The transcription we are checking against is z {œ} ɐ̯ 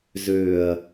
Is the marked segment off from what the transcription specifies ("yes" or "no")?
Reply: yes